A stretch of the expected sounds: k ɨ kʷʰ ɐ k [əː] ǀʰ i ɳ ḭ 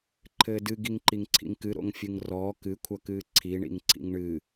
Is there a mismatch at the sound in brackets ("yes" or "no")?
yes